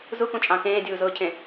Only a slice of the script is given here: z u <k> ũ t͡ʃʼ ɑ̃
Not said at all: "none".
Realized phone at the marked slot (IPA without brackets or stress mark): k